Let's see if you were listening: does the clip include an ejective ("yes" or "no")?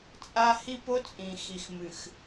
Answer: yes